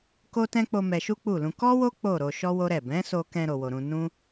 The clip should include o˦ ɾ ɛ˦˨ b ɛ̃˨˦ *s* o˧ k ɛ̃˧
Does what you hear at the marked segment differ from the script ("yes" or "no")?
no